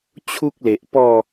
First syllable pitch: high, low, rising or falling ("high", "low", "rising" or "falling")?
high